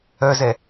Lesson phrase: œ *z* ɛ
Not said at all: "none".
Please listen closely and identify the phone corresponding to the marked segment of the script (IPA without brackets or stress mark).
z